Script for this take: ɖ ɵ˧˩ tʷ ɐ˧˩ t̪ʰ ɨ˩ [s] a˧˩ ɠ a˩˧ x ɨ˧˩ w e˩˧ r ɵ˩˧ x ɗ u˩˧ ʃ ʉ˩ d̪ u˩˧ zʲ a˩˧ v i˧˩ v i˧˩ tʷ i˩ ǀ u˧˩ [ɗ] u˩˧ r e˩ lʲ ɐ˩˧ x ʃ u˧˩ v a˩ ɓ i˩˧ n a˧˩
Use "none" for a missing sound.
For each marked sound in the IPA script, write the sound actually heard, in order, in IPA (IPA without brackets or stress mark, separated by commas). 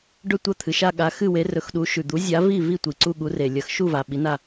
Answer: ʃ, ɠ